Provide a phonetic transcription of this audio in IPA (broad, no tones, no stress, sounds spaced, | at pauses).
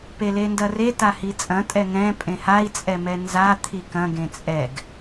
p e l e n d ɐ r e t a h i t͡sʼ ɐ̃ tʼ ɛ ŋ ɛ̃ pʼ ẽ h a i̯ t͡sʼ ɛ m ɛ n z a t̪ʰ i k ɐ̃ ɡ ẽ t͡sʼ ɛ ɡ